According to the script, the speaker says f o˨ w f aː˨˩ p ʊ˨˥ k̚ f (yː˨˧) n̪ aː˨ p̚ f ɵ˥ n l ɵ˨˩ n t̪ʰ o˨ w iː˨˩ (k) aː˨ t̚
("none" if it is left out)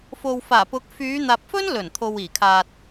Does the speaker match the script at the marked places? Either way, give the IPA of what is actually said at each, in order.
yː˨˧, kʰ

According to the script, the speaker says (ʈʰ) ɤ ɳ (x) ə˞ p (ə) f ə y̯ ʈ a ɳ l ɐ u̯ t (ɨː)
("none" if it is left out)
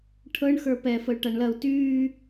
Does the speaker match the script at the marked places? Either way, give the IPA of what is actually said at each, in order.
ʈʰ, x, ɛ, yː

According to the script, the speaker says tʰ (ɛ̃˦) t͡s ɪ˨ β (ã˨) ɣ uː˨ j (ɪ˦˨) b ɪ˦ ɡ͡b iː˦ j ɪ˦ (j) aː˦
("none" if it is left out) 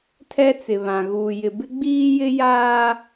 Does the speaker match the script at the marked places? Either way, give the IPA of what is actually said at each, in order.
ɛ˦, ã˨, ɪ˨, j

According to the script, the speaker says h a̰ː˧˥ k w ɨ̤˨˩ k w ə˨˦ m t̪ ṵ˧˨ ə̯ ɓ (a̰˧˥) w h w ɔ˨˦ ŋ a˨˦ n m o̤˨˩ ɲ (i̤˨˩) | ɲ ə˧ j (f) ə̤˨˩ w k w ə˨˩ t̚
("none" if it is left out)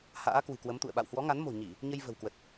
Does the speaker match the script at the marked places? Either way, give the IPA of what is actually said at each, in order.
a̰˧˨, i˧˩˨, v

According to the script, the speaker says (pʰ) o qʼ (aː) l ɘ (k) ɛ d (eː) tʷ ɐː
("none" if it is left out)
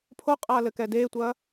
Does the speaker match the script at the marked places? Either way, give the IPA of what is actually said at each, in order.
pʰ, aː, k, eː

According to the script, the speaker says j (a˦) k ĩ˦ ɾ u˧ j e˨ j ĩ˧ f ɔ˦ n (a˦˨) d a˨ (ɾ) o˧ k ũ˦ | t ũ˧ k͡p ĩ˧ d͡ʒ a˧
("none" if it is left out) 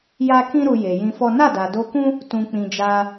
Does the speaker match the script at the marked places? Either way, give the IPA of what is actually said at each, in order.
a˦, a˦˨, d

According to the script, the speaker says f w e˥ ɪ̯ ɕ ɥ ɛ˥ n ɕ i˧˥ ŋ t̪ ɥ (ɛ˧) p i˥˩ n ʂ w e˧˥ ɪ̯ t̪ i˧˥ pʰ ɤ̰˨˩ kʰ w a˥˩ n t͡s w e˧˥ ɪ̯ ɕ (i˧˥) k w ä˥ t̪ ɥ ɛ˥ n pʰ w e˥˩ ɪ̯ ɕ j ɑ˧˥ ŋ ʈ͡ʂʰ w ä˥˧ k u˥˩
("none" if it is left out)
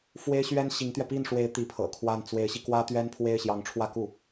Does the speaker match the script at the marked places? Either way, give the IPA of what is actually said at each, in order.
ɛ˧, i˧

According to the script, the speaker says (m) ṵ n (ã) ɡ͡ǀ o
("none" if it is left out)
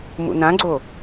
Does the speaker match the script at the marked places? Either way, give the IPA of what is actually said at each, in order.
m, ã

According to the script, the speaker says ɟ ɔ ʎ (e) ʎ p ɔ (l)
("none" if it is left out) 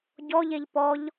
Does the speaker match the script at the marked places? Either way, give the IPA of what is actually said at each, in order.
e, ʎ

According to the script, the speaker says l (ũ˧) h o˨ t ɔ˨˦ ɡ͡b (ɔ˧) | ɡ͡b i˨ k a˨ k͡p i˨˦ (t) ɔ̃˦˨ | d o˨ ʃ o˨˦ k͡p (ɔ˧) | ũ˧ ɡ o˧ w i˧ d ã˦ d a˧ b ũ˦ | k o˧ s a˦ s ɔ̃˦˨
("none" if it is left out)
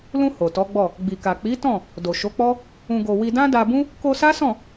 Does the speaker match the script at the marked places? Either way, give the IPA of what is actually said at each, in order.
ũ˧, ɔ˦˨, t, ɔ˦

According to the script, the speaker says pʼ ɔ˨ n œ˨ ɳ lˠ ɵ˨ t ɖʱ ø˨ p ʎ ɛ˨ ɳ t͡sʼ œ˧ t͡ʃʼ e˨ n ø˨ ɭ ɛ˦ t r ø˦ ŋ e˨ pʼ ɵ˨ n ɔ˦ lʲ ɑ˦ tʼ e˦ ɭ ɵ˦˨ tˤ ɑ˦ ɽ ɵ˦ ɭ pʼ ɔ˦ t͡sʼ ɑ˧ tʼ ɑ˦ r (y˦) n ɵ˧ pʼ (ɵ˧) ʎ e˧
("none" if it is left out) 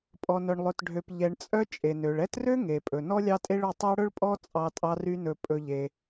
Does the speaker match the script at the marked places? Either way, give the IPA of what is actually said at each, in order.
y˦, ɵ˧

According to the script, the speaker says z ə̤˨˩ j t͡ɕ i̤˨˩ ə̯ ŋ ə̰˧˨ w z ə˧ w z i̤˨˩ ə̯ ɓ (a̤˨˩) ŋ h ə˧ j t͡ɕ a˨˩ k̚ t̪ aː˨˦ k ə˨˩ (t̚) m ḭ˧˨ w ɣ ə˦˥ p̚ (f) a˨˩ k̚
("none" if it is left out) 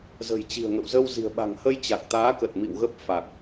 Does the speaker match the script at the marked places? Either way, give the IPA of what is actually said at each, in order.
a̤˨˩, t̚, f

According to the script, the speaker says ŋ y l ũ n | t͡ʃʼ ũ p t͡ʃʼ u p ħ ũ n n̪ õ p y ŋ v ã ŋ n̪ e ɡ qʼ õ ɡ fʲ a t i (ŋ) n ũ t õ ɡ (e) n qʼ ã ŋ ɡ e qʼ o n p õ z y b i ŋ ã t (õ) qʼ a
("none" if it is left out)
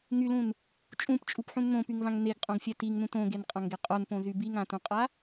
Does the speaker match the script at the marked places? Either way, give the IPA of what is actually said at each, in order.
ŋ, e, ũ

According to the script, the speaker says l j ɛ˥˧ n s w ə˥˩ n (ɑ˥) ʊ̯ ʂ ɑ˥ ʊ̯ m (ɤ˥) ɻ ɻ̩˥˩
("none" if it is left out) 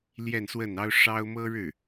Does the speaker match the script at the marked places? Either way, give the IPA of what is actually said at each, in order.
ɑ˥, ɤ˥

